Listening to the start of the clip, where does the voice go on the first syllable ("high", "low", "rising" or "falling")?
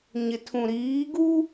low